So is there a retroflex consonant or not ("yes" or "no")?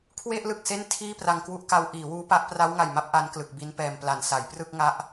no